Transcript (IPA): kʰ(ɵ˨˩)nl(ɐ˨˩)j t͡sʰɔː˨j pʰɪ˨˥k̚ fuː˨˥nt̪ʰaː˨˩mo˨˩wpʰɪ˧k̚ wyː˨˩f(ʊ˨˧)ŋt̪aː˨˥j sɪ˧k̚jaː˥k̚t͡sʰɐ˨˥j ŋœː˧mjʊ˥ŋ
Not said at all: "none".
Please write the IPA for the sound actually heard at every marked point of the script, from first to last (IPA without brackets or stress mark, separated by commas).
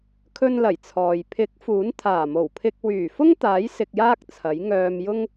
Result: ɵ˧, ɐ˨˩, ʊ˥